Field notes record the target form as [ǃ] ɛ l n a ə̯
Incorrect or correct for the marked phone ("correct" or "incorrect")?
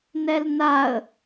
incorrect